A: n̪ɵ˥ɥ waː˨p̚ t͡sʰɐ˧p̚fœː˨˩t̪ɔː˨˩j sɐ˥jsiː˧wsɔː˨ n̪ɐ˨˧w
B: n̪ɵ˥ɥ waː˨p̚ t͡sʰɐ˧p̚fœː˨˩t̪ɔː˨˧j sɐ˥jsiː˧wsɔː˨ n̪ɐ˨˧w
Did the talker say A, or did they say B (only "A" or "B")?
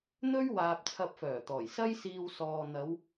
A